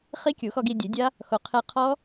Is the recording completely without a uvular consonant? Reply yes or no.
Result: no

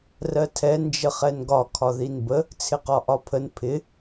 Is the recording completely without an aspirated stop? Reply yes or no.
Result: no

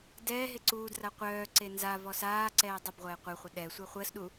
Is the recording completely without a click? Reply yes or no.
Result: no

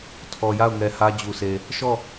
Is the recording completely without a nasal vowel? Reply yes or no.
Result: yes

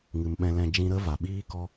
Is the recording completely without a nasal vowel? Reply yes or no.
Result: no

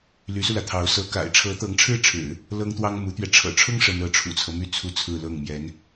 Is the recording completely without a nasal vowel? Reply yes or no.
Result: yes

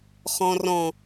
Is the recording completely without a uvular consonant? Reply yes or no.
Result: no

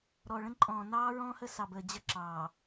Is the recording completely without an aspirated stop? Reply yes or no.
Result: yes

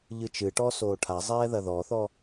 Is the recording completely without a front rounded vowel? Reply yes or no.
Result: yes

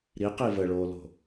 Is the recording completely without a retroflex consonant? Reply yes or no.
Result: no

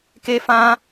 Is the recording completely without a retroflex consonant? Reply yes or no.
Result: yes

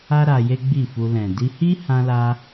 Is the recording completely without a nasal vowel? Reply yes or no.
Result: no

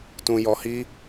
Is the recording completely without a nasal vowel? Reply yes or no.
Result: no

